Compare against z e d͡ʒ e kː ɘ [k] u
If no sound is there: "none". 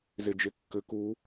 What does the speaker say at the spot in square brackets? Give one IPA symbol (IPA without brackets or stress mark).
k